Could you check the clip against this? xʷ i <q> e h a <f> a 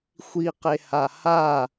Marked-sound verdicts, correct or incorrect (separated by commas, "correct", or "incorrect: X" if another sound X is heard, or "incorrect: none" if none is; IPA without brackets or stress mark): correct, incorrect: h